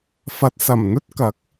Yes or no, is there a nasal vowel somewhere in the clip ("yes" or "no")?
no